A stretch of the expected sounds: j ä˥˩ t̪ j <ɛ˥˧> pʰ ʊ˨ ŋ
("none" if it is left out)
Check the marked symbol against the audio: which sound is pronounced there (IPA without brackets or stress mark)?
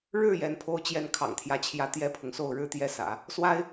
ɛ˥